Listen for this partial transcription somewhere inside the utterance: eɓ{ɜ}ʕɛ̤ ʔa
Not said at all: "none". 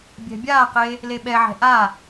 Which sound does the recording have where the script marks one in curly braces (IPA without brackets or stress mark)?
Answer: ɛ